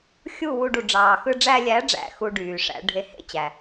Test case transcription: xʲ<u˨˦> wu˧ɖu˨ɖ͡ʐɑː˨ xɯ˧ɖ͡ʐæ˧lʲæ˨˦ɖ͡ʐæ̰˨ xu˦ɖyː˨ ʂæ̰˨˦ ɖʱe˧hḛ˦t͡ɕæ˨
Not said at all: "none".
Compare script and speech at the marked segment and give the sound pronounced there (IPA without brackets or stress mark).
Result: u˦˨